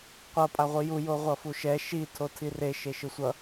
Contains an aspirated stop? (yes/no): yes